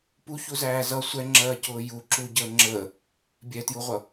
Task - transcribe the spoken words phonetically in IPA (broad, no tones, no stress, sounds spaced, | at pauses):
p u ç u z æː z ʌ sʷ ɛ ŋ͡ǁ ɜː c ʊː j u ǁ u ɟ əː ŋ͡ǁ əː | bʲ ɛ t j u ʁʷ ʌ